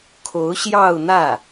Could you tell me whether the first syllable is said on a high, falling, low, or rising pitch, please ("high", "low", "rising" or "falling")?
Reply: rising